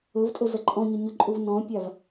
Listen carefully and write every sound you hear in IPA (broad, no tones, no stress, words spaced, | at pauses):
ɵvtʼɵ zɐǃʼɔ̃ɲʏ ɲɵǃʼuv nɔ̃pʲav